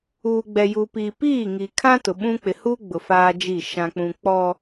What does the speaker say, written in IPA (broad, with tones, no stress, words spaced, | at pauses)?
uː˨ɡ͡bɛ˨ju˨piː˨ piː˦˨ŋi˨kʰã˦ tʊ˨ɓũ˦ k͡pɪ˨huː˦ ɡ͡bʊ˨faː˦d͡ʒi˦˨ ʃã˨k͡pũ˨ k͡pɔ˦